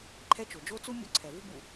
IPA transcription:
ǃʰ ɛ˦ t͡ʃ o˩ d͡ʒ o˥ t͡s u˥ mʲ o̰˦ ǀʰ ɛ˩ v u˥ b ṵ˩

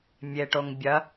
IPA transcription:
mʲ e ʈ o ŋ bʲ ɐ

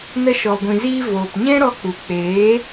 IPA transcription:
n ə˧ ʃ ɔ˨ ɡʷ ĩ˨ z iː˧ v oː˨ p ɲ ɛ̃˦ ɾ ɔ˧ k͡p u˨ k͡p eː˨˦

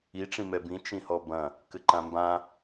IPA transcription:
i ʈ͡ʂ ĩ m ɛ b ĩ t͡ʃ ĩ h ɔ b ɐ̃ | k ɘ ǃ ã m b ã

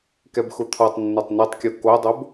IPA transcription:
k ɛ b x ʊ t̪ʰ ɔ tˤ nː ɛ tˤ n e tˤ kʲ o k o dˤ o b

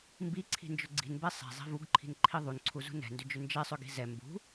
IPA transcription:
m b i ǀʰ i̤ n d͡ʒ ʏ ɡ͡ǀ i̤ n b ɛ sˤ ɛ̤ zˤ i̤ v u ɡ ǃʰ i̤ n ǃʰ i ðˤ u n ǀʰ u z ṳ n ɛ̤ n d ʏ d͡ʒ ʏ n d͡ʒ ɛ sˤ ʏ ɡ i̤ z ɛ m b ṳ

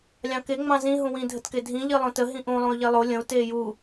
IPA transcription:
lʲ ɑ̃ k e ŋ͡m ɑ̃ z ĩ ɦ ũ w ĩ dʱ ə t k e dʱ ĩ ʎ i lˠ õ t ə ɦ ĩ ʔ ũ lˠ ũ y̯ ʎ e lˠ o lʲ ə̃ u̯ t eː j u

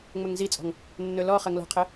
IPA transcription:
ŋ͡m ɵ ŋ z i t͡sʼ ɔ̤ ŋ | nː ɵ l ɔ χ ɜ ŋ l ɔ̤ qʰ ə

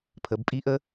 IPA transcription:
pʰ ə˩˧ b pʼ i˦˥ ʔ ə˦˥

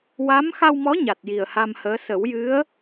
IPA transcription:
w a˧˥ m x a˧ w m ɔ˧˥ ɲ a˨˩ t̚ j i˨˩ ə̯ h a˧ m h əː˧˥ s ə˨˩˦ w j ɨ˧˥ ə̯

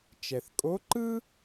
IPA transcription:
t͡ʃ ɛ˩ θ kʼ o˧˥ ǃ ɯ˥

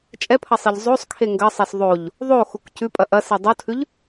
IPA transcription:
t͡ʃʼ ɛ pʰ ɐ sˤ i ʎ zˤ o sˤ kʰ e ŋ ɡ ɐ sˤ ɛ s ðˤ o ʎ | ðˤ o x u k c ʉ pʼ ɐ ʔ ɐ s i dˤ o tʰ ʉ ʎ

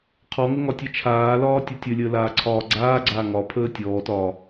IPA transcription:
qʰ ɔ ŋ ə ŋ ɒ tʲ ɛ t͡ʃʰ aː l ɒː tʲ ɛ tʲ ə lʲ əː l aː ǀʰ ɒː ɡ͡ǀ aː ɡ͡ǀ aː ŋ ɒ pʰ əː tʲ ɔː t ɒː

